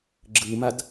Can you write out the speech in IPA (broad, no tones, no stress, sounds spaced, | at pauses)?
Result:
ɡ͡ǁ ɯ m a d